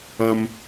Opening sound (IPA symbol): ʌ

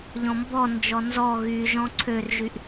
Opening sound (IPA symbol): ʎ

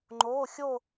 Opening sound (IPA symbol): ŋ͡ǃ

